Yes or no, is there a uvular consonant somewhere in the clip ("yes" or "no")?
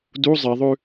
no